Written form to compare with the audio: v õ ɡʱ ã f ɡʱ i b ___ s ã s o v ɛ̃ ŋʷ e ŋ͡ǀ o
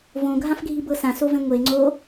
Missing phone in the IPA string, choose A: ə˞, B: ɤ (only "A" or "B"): B